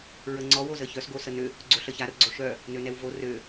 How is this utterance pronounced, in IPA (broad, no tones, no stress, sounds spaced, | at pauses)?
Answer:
ɹ ə ŋ͡ǀ ɔ w o z ə ç œ s ɡ o s ə n ø | ɡ͡ǀ o ɬ ə ç a r ɡ͡ǀ o ʃ œ | n ø n ɛ w v o r ø